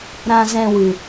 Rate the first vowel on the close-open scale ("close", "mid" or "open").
open